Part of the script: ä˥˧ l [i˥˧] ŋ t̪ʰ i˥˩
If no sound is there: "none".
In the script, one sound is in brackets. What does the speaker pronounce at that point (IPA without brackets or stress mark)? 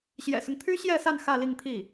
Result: i˥˧